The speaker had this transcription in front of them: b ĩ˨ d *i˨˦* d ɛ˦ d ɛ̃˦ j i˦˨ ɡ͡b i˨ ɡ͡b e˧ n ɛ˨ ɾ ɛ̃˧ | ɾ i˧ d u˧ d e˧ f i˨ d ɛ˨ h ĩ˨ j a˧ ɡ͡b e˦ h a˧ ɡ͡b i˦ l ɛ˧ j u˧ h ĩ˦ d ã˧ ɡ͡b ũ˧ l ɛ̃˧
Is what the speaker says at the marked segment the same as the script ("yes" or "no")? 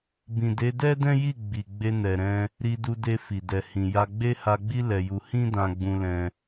no